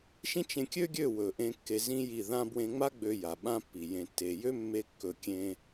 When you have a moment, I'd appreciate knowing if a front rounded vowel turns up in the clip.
yes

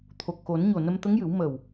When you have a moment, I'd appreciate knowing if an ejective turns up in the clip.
no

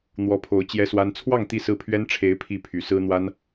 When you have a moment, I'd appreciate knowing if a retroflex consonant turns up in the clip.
yes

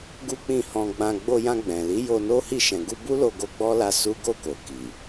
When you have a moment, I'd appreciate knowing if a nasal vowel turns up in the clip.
yes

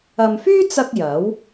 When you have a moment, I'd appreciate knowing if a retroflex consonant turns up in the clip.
no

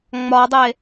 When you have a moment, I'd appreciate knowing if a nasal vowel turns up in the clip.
no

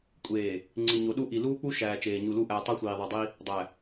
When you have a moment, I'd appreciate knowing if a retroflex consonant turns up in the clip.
no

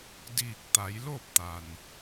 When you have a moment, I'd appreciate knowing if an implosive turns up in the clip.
no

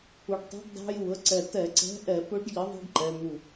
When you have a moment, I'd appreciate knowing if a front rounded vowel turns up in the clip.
no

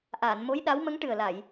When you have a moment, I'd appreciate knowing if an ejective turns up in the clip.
no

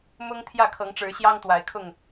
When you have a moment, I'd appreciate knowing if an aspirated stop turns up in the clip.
yes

